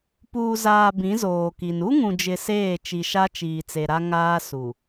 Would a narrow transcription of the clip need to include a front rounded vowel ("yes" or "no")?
no